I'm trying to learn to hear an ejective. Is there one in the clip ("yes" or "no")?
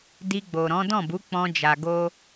no